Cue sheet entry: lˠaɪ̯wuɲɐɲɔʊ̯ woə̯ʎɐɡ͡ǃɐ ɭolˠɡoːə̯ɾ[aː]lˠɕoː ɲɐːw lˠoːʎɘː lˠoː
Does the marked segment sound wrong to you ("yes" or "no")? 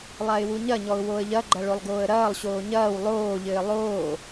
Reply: yes